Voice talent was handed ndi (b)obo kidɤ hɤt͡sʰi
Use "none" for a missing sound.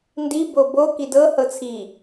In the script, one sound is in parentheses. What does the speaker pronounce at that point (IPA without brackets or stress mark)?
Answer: b